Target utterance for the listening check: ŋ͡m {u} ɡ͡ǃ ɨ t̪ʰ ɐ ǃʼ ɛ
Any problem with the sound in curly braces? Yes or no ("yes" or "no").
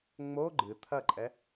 yes